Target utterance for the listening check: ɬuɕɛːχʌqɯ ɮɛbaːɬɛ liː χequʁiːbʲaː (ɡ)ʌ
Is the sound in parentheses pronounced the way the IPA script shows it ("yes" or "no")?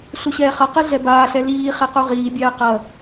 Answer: no